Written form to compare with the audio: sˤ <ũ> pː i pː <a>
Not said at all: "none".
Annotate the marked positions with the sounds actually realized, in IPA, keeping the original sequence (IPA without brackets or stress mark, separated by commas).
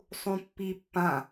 ũ, ã